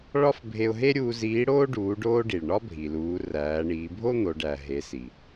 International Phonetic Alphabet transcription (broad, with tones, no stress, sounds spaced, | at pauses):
ɭ ɒ˥ f bʱ e˧ ʊ̯ ɦ e˥ ɾʲ uː˧ z iː˧˥ ɽ oː˥ ɖ uː˩˧ ɖ oː˧ ɖ i˩ ɭ ɳ ɒ˥ bʱ i˩ l uː˩˧ r æː˩˧ ɳ iː˩˧ bʱ o˥ n̪ o˩˧ ɖ æ˩ ɦ e˩˧ s i˩